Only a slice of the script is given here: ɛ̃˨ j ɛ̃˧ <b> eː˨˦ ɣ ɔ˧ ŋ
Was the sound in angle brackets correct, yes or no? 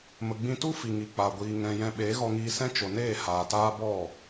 no